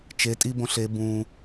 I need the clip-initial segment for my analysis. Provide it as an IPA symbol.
t͡ʃ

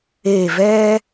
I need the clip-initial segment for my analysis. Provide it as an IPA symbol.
eː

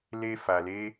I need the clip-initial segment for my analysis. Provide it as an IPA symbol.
l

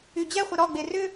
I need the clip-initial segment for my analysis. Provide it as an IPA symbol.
y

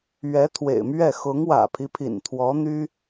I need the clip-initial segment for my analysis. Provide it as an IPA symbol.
ɥ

